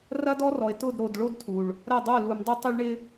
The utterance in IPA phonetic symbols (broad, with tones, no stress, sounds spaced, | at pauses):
r ɐ˦ d ɔ˦ r ɔ˨ ɪ̯ t ʊ˦˨ d ɾ o˨ d ɭ o˦ d tʰ u˨ ɭ | ɾ ɐ˦˨ dˤ o˦˨ l u˨ m dˤ ɪ˦ tˤ ɪ˦ ɭ ɳ ɪ˦